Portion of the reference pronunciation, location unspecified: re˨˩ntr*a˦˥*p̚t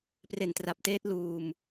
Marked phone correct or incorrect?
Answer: incorrect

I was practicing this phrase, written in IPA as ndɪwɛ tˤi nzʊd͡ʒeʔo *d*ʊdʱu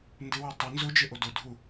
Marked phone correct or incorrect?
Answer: correct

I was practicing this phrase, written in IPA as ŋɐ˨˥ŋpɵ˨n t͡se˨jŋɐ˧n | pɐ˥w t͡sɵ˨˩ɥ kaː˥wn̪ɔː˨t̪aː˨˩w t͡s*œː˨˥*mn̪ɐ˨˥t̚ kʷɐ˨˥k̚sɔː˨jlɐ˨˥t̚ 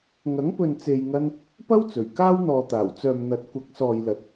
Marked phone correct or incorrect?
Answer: incorrect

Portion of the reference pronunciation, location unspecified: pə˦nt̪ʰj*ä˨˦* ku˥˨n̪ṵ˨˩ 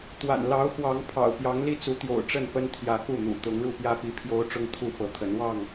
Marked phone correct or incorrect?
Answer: correct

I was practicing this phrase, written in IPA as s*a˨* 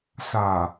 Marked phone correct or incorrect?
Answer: correct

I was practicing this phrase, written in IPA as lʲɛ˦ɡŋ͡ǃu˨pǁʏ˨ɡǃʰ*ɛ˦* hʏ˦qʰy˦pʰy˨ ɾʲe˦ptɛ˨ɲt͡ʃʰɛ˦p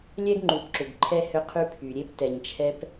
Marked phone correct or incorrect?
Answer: correct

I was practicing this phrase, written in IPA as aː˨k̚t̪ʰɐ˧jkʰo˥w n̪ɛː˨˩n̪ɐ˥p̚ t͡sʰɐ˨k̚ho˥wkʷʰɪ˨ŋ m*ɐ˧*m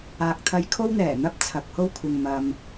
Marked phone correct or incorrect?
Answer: incorrect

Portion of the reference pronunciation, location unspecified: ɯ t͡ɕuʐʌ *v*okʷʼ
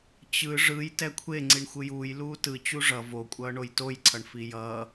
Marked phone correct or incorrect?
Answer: correct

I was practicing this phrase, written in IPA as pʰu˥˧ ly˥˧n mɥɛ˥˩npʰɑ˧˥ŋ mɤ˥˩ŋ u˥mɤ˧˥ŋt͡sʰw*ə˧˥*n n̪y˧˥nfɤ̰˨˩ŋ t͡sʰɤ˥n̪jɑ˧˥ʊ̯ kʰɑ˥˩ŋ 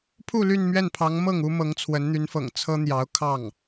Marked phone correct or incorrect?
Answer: correct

